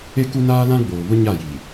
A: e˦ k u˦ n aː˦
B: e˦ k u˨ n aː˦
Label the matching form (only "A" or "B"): A